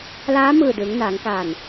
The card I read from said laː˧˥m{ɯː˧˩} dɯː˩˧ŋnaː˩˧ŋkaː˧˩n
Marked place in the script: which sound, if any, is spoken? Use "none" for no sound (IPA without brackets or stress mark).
ɯː˧˩